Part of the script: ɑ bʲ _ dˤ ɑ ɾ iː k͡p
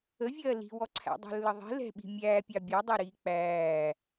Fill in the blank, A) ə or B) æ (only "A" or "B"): B